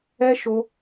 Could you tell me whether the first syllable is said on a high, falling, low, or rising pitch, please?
high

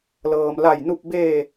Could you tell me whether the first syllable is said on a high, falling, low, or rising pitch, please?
low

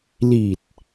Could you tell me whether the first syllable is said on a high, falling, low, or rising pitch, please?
low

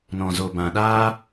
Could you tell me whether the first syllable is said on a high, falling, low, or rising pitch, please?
low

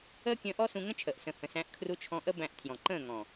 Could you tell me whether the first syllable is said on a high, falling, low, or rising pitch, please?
high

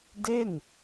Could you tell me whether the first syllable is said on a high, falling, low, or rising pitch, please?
falling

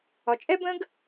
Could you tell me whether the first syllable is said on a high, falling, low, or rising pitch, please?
low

